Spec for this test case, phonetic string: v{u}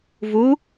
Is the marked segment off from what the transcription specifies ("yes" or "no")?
no